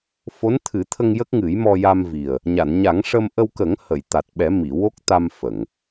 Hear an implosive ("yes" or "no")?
yes